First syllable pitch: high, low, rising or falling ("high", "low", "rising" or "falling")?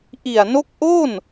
low